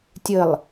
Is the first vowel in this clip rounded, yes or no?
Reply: no